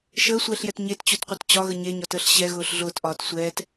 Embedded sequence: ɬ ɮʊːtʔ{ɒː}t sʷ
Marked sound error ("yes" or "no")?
no